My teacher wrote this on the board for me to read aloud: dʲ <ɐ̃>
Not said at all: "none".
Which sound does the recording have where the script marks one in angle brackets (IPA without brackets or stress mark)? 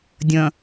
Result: ɐ̃